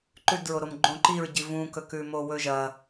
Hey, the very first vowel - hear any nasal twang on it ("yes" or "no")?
no